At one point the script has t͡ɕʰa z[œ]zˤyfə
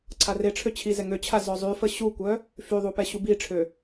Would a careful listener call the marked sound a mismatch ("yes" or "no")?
no